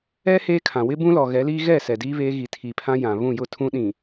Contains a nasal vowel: yes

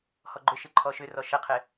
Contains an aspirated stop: yes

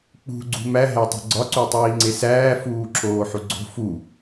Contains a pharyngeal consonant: yes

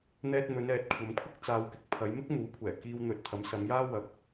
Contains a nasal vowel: no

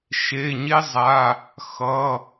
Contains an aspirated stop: no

